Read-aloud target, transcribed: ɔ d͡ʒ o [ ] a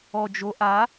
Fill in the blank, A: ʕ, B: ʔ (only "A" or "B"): B